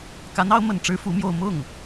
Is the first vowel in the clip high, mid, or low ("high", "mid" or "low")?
low